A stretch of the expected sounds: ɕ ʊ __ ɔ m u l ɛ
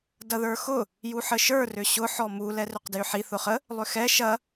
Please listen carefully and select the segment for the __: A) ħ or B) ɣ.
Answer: A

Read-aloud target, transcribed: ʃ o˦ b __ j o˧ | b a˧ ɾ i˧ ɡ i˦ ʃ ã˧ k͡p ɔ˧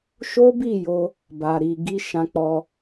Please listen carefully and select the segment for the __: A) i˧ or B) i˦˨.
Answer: B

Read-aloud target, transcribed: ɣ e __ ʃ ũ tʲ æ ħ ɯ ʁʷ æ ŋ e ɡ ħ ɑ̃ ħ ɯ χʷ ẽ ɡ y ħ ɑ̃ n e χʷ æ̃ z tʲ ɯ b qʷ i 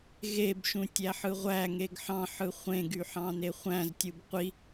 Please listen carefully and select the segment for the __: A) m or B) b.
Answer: B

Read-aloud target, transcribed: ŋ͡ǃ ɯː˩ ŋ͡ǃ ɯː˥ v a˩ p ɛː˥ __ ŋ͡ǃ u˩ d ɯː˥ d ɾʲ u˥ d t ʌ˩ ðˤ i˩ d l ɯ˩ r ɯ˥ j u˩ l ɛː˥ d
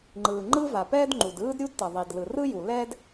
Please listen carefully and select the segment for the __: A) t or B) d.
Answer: B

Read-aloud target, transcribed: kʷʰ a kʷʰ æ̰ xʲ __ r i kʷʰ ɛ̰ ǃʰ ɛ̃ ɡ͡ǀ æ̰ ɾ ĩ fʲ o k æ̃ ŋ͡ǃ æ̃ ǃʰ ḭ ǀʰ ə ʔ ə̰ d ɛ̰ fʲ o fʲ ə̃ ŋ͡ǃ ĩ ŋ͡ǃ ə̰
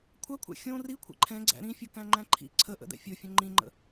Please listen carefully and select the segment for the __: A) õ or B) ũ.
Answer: A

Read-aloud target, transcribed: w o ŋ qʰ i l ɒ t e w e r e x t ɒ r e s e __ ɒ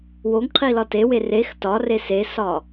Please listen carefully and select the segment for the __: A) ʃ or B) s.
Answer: B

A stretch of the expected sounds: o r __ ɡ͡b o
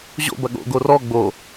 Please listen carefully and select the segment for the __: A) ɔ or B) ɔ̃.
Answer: A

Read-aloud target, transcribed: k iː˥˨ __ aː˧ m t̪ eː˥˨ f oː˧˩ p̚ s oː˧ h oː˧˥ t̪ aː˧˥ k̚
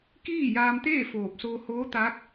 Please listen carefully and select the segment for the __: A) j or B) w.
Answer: A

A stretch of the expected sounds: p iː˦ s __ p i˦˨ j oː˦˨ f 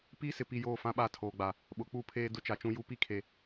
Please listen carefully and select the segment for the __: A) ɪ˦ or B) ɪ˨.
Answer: B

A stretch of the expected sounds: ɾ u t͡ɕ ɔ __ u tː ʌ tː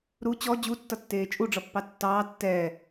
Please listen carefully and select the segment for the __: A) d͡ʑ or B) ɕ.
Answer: A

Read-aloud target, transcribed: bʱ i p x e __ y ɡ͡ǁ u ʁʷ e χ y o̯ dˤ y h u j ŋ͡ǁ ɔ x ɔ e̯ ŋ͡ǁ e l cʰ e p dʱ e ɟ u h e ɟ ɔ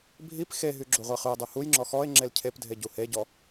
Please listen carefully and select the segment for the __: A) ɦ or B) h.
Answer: A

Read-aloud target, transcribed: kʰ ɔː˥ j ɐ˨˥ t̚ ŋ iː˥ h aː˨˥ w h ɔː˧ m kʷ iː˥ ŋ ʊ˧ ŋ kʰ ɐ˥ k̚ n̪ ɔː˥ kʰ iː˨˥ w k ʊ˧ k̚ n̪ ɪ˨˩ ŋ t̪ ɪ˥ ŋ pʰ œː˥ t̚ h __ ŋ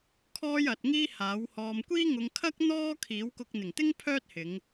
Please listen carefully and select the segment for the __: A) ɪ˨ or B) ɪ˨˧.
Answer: B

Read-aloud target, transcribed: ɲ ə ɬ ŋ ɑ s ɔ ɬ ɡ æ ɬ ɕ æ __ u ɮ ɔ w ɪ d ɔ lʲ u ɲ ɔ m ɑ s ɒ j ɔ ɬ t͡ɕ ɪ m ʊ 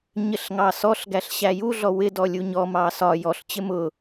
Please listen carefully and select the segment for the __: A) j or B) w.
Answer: A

